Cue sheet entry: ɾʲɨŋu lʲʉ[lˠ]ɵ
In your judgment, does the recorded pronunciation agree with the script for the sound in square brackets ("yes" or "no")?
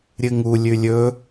no